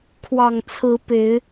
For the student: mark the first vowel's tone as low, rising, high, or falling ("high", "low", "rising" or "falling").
low